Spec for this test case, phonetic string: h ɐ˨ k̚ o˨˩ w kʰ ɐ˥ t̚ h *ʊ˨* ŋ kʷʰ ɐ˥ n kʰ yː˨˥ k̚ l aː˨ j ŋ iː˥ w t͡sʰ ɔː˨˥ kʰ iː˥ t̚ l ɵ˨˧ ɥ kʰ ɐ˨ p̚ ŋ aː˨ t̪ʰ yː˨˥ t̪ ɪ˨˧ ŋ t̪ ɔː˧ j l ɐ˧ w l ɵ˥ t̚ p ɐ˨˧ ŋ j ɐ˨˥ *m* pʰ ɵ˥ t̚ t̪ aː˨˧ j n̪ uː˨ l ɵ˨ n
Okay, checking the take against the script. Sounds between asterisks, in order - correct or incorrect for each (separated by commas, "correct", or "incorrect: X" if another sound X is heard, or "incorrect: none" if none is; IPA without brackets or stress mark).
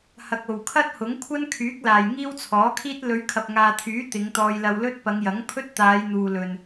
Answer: incorrect: ʊ˨˥, incorrect: ŋ